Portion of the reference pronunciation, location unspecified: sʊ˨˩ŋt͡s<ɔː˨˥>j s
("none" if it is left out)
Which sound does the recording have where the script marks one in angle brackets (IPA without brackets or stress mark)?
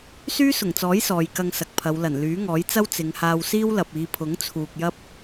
ɔː˨˥